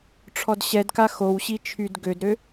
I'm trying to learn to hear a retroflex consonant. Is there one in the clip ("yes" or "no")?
yes